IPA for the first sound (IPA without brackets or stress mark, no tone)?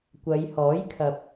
kʷ